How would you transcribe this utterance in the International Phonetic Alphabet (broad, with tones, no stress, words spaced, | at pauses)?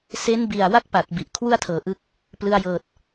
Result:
se˦˥nbi˨˩a̯wa˥˩k̚ pa˨˩t̚ bi˨˩ʔ kʰwu˥˩a̯tʰɤː˩˦ʔɯ˦˥k̚ | plɯ˧a̯jɤː˨˩t̚